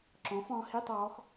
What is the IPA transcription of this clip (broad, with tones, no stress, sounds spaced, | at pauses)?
ǁ ɔ̃˨˦ f ɔ̃˨˦ h i˧˥˧ tˤ ɔː˨˦ x